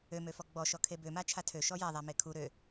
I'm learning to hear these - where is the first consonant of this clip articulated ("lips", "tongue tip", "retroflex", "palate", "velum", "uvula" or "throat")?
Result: lips